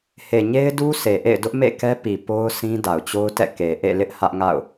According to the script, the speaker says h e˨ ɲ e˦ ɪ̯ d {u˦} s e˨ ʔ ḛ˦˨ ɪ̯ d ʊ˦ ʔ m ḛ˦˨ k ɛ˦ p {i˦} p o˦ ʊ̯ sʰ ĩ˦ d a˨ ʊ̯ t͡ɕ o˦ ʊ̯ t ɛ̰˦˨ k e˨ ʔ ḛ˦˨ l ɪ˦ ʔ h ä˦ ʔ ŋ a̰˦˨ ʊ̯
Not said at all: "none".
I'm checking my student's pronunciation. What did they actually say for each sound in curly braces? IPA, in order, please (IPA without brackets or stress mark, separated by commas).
u˦, i˨